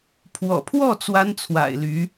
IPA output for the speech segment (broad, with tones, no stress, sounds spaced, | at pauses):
pʰ w ɔ̰˨˩ pʰ w ɔ˥˩ t͡s w a˥ n t͡sʰ w a̰˨˩ ɪ̯ l y˧˥